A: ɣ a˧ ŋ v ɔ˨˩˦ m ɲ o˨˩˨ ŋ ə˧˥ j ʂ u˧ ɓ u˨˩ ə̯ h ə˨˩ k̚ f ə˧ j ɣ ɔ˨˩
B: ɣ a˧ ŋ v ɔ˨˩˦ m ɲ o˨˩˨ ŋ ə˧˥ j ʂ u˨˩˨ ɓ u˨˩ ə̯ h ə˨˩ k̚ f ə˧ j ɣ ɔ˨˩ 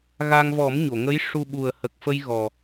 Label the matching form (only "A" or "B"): A